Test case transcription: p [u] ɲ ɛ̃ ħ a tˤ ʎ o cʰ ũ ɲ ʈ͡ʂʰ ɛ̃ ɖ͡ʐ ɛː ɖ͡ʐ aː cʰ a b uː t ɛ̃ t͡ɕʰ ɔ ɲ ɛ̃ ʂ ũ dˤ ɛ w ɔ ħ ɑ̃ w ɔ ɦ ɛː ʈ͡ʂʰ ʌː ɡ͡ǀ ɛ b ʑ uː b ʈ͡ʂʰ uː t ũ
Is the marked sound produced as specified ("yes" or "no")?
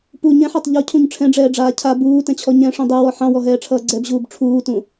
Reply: yes